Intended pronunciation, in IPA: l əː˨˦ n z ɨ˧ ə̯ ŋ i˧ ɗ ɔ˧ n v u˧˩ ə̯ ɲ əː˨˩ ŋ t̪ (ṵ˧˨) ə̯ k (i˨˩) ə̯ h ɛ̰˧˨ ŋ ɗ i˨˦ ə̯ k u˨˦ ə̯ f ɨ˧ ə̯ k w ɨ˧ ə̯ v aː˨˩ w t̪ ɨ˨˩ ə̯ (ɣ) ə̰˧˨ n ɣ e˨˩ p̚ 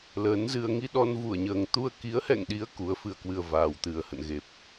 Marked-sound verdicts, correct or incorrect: incorrect, incorrect, incorrect

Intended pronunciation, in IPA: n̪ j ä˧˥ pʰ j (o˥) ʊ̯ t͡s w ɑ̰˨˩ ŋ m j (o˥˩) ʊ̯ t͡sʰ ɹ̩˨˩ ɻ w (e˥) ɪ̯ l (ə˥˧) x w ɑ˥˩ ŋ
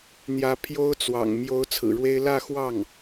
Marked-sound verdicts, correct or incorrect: correct, incorrect, correct, incorrect

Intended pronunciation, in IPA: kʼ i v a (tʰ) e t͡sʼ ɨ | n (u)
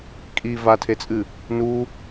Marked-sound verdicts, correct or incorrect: correct, correct

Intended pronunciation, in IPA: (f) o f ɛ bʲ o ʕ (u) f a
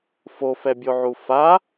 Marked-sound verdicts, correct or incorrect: correct, correct

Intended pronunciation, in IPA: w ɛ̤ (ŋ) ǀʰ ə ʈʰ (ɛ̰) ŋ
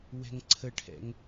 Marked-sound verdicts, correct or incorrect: correct, correct

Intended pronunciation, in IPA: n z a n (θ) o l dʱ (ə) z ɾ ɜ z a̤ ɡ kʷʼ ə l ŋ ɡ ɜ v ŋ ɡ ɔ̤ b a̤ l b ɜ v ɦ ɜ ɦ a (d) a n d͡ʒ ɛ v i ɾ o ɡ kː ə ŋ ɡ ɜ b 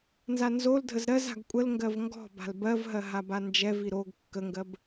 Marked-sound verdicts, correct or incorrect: incorrect, correct, incorrect

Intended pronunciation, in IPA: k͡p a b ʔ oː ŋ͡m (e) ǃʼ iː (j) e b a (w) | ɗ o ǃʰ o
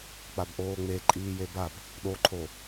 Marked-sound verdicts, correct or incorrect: correct, correct, incorrect

